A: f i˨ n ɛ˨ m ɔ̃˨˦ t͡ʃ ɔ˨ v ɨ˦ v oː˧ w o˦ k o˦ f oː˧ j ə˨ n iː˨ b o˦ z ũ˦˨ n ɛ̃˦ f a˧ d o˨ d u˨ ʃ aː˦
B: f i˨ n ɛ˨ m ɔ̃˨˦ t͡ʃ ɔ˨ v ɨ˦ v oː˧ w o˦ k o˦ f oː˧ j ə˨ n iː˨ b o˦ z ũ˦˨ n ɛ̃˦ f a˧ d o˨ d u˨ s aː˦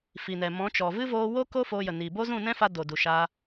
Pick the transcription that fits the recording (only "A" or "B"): A